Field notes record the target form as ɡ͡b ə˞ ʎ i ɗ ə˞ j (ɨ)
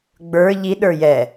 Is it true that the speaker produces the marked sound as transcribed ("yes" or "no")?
no